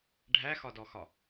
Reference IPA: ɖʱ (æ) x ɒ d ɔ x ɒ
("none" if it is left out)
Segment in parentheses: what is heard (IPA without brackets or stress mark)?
æ